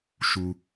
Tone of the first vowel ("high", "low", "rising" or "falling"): high